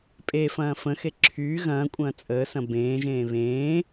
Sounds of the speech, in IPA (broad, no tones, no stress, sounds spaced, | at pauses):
pʼ e f ɐ̃ː f ə̃ x e ǁʰ yː ɣ ɐ̃ː kʷʼ ɐ̃ː t͡sʼ əː s ɐ̃ b ẽː ʒ ẽː β ẽː